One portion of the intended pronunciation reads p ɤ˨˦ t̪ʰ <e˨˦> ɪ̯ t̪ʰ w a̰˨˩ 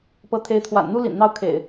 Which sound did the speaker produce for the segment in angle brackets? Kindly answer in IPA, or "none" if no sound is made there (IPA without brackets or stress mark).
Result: e˨˦